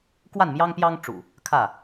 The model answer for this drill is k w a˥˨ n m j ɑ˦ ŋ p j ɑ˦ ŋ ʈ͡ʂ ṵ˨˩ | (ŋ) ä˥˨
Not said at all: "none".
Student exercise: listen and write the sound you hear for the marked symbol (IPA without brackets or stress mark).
kʰ